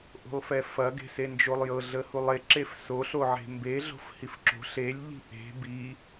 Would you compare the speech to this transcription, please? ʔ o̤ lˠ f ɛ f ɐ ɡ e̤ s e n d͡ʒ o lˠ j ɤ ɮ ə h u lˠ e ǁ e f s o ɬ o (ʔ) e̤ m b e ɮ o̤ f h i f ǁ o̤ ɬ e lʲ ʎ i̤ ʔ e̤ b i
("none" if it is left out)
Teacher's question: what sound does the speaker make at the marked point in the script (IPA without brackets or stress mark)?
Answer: ʕ